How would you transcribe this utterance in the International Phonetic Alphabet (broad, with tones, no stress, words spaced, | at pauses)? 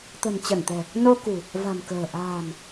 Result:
t̪ə̤˨˩nt͡ɕə˧˩nt̪ɛ̤˨˩ | no˧kṳ˨˩ | va̤˨˩nkə̤ː˨˩ ʔa̤ː˨˩n